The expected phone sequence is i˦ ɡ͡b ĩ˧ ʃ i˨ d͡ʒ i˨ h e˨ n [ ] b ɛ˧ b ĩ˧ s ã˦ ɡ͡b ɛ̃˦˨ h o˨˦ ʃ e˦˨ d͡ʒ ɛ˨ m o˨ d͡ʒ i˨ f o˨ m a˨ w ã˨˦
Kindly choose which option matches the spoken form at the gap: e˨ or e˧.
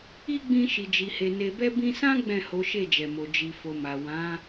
e˨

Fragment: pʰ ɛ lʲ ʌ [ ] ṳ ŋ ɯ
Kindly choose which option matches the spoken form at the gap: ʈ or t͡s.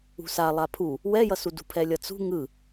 t͡s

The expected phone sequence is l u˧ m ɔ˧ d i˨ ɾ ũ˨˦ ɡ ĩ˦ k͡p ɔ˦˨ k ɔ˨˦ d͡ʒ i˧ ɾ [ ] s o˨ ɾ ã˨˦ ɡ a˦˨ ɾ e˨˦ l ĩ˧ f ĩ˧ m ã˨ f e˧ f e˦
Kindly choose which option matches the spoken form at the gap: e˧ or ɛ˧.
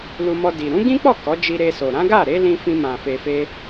e˧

